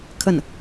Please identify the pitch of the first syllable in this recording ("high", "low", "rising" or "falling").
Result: falling